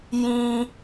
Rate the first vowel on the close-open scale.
close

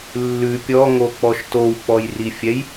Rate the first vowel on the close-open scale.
close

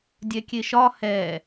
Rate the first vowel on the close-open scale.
mid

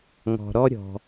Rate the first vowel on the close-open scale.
mid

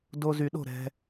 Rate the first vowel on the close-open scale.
mid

